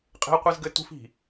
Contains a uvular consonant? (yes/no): yes